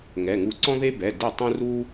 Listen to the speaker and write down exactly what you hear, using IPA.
ŋ ɛ˩˧˩ ŋ u˧ ǀ ɔ̃˥ ð e˥ b ɛ˩˧˩ d e˥˨ tˤ ũ˥ r u˥

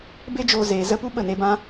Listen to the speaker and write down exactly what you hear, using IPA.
b e˦ d͡ʒ oː˧ z eː˨ z ə˧ p u˦ ɓ ə˦˨ n e˧ b ã˦

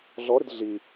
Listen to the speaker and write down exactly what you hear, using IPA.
ɮ ɔ ɾ ɪ d ɮ i

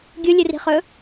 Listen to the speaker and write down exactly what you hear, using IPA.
ɡʲ u lʲ ɨ r i̤ χ ɵ

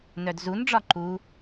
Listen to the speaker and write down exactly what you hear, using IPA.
n œ d z u n ɖ͡ʐ ɒ ǃ u

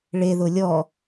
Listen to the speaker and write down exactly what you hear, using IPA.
ɭ e ð ʊ lʲ ɔ

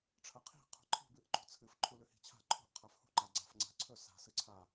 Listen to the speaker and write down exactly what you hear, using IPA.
ʈ͡ʂʰ ɐ qʰ i̤ qʰ ṳ ǃʰ i̤ b ɨ ʔ ǃ ṳ t͡sʰ ɨ f ǃʰ u l ʉ h i̤ t͡ɕʰ a̤ ǃʰ ṳ ʔ qʰ a f h ṳ ǃ a ɡ͡ǀ a̤ f ŋ͡ǀ a̤ ǀʰ ɵ s a̤ s ɨ ǀʰ a

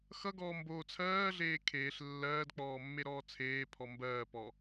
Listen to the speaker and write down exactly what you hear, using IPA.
x ʌ ɡ ɔː m b oː t͡sʰ ɜː ɮ eː kʰ eː ɬ lː ɜː d k͡p ɔː mː e ɾ ɔː t͡sʰ eː pʰ ɔ m b ɜː p ɔ

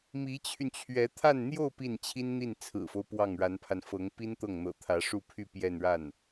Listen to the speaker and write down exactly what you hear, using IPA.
m i˧˥ t͡ɕʰ y˧ n t͡ɕʰ ɥ ɛ˧˥ t̪ʰ a˥˧ n n̪ j o˥˧ ʊ̯ p i˥˩ n t͡ɕʰ i˥ n n̪ i˥˩ n t͡sʰ ɹ̩˨˩ f o˦ ʊ̯ p w ɑ˥˩ ŋ ɻ a˧˥ n pʰ a˧ n f ɤ˧˥ ŋ p i˥ n t̪ ɤ˥˩ ŋ n̪ ɤ̰˨˩ t̪ʰ ä˧˥ ʂ u˥˧ pʰ y˥˧ p j ɛ˥˧ n ɻ a˥˩ n

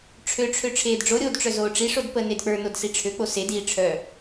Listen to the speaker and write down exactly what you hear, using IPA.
ʈ͡ʂʰ ø ʈ͡ʂʰ ø ʈ͡ʂʰ eː d ɖ͡ʐ o ɾʲ oː d ʈ͡ʂ œ z oː ʈ͡ʂ i ʂ o d p ə n e d k͡p ə˞ n o d s i ʈ͡ʂʰ ø k͡p o s e d iː ʈ͡ʂʰ œ

